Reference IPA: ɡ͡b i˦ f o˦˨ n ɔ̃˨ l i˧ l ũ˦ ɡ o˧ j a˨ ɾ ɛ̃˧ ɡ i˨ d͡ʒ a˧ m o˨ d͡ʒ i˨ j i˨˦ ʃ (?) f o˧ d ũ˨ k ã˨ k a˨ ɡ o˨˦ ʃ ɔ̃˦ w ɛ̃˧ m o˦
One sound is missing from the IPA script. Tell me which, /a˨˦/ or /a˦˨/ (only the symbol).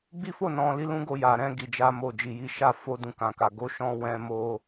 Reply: a˦˨